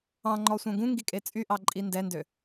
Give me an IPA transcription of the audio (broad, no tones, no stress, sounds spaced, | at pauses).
ɑ̃ ŋ͡ǃ ɔ sʷ œ̃ ɡ ũ ŋ ɡ i kʼ e t͡sʼ y ʔ ɑ ǃʼ i n d ɛ n d ø